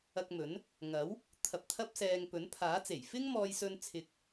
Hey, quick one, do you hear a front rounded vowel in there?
no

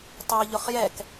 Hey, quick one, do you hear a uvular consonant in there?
yes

